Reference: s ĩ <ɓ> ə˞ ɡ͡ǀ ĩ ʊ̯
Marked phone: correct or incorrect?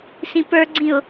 incorrect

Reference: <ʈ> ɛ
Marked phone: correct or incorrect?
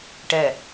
correct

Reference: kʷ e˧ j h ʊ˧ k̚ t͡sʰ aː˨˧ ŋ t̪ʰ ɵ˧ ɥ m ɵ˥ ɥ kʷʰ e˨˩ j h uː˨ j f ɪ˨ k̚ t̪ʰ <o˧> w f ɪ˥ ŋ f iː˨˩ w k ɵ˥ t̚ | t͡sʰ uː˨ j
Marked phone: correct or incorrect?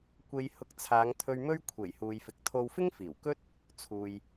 correct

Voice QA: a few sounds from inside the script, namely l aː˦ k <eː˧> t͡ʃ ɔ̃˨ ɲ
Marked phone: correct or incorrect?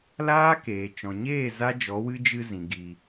incorrect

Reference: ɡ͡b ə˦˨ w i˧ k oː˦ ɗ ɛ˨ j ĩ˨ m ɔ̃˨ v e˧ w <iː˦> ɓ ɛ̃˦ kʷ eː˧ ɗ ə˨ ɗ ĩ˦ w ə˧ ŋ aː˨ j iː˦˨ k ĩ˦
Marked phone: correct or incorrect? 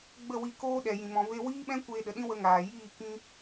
correct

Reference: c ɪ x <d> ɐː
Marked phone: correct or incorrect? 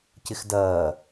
correct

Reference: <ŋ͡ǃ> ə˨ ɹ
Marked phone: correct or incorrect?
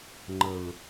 correct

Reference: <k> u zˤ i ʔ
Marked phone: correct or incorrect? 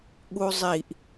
incorrect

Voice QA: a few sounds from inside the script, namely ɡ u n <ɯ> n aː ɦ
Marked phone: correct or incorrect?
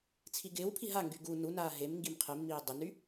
incorrect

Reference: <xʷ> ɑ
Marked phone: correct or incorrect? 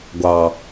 incorrect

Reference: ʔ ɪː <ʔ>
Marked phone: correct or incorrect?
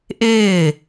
incorrect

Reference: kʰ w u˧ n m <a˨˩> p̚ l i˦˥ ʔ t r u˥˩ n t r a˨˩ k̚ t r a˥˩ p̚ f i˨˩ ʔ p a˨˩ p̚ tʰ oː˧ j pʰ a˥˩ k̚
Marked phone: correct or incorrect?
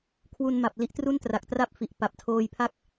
correct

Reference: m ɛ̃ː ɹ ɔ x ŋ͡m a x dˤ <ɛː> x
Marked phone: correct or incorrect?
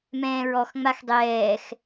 correct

